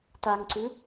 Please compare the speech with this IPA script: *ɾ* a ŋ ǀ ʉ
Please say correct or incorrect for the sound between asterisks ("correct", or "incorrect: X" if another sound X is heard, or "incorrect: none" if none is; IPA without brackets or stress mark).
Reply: incorrect: t